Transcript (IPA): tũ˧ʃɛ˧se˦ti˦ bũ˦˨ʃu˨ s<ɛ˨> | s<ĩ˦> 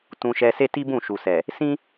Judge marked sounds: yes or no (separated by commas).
yes, yes